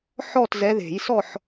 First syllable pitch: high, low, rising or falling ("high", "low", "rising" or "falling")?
falling